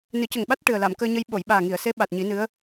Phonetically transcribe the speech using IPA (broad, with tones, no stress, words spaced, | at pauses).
nɨ˨˩˦cə˨˩ŋɓa˦˥t̚ ʈɨ˨˩ə̯la˨˩˨m kəː˧ɲə˧j ɓo˨˩˨jɓaː˨˩ŋi˨˩˨ə̯se˧˥ ɓa˨˩t̚ɲi˨˩˦nɨ˧˥ə̯